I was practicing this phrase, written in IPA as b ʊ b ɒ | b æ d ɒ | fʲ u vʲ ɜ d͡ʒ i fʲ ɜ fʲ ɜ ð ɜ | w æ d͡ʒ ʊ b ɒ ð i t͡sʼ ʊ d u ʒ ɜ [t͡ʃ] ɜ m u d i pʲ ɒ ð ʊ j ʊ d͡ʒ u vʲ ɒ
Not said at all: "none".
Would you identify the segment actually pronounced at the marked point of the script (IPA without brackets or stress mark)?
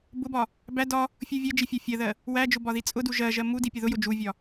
ʒ